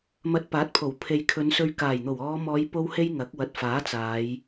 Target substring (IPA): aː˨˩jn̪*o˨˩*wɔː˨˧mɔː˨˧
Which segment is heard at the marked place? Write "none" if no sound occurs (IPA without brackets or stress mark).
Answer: o˨˩